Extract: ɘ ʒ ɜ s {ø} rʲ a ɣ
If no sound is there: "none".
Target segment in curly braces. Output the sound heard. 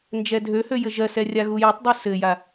ɛ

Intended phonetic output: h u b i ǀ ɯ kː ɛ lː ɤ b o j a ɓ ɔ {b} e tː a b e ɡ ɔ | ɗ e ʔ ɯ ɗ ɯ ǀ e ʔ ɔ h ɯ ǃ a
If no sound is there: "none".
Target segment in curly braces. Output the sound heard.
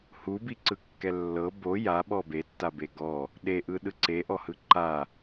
b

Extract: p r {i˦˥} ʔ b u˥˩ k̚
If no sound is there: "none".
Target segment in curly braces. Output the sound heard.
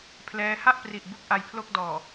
i˨˩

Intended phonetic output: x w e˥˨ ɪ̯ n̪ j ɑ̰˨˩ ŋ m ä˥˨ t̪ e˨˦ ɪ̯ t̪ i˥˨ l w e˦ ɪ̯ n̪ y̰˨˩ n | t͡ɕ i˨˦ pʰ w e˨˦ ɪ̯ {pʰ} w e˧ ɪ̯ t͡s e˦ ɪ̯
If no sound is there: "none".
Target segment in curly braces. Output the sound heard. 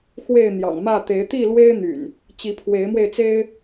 m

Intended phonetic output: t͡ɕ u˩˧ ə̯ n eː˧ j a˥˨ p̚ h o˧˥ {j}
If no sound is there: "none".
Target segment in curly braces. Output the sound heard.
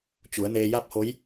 j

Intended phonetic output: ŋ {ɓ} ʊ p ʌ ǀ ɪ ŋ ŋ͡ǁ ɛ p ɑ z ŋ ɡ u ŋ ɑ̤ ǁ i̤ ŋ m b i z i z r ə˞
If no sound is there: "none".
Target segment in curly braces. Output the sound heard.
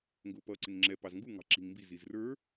ɡ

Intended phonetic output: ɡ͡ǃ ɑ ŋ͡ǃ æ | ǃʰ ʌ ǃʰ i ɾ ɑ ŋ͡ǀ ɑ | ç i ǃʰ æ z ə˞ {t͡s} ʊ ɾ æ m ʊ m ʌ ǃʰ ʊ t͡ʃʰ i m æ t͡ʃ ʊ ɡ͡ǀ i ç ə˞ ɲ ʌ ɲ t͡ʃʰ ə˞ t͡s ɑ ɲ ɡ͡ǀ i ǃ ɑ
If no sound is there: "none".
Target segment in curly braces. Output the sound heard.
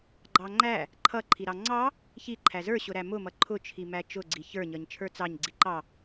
ɕ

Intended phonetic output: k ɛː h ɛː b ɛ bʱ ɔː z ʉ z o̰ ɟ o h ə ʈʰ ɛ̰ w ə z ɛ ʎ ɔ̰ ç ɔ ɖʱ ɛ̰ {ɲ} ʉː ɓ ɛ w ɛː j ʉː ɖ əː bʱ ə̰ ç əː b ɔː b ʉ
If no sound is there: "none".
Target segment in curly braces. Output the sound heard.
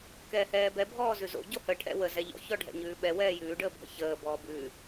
ɲ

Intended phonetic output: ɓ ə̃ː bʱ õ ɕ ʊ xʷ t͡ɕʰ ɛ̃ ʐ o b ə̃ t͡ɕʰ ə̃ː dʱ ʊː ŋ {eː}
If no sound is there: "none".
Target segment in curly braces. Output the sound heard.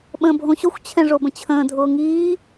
iː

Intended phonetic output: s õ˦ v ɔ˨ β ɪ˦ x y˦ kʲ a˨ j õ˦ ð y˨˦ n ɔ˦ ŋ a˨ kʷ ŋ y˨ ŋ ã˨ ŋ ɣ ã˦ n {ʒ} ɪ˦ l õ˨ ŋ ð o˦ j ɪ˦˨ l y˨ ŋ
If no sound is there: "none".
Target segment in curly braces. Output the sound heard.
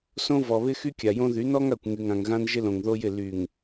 ʒ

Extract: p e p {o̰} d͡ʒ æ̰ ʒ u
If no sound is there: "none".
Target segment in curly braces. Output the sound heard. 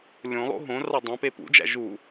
ṵ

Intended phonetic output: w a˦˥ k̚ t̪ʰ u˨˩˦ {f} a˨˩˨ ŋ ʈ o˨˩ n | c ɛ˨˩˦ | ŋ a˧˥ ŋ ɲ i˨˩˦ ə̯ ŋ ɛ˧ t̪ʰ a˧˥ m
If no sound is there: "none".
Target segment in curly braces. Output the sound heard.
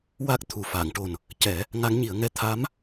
f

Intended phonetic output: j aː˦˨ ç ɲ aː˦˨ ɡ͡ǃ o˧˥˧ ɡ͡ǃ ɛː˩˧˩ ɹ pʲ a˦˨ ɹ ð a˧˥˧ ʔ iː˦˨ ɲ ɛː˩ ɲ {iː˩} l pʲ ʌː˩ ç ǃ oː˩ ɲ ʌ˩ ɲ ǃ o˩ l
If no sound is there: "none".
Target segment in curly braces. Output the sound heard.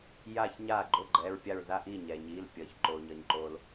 iː˩˧˩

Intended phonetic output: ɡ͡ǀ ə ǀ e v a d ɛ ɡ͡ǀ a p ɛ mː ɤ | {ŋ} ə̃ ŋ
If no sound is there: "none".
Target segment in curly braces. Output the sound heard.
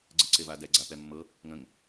ŋ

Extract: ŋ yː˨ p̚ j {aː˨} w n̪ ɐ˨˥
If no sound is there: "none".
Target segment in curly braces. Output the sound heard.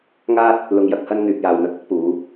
aː˨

